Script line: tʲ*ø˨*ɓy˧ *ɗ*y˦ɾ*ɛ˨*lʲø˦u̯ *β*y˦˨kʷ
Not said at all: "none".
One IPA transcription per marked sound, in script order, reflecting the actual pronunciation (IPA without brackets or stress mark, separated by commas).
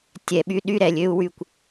ɛ˨, ɗ, ɛ˨, w